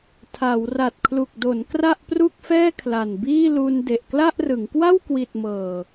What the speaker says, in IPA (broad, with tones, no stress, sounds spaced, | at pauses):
tʰ a˩˦ w r a˨˩ t̚ kʰ l u˨˩ k̚ d o˩˦ n k r a˥˩ ʔ p r u˥˩ k̚ f ɛː˥˩ kʰ l a˨˩ n b iː˥˩ l u˧ n d e˨˩ ʔ k l a˥˩ ʔ r ɯ˩˦ ŋ k w a˥˩ w k w i˨˩ t̚ m ɤː˨˩